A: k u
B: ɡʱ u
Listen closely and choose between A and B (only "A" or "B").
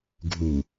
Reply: B